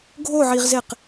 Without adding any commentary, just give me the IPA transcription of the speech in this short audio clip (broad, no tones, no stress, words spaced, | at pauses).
ɡʱoʕiʁzeq